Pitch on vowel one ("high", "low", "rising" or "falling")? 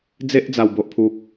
high